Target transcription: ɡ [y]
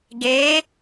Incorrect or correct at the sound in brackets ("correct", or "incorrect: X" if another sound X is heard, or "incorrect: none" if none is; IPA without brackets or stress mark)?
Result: incorrect: e